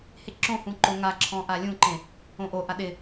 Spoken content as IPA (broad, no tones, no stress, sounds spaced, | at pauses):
h e ǁ õ h ũ ǃ ʊ ŋ a ǁʰ ɔ̃ ʔ a lʲ ũ ǃ ẽ | õ ʔ o ʔ a ɗ ɪ